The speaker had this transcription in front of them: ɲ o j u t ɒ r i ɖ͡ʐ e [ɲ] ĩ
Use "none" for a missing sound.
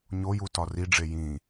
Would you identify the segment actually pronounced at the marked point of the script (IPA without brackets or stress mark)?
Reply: j